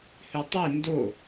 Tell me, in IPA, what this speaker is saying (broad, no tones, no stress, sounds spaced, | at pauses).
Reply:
h ʉ tˤ ʉ n d o